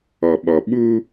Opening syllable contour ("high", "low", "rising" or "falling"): low